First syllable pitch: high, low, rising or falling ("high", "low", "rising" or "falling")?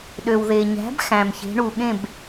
low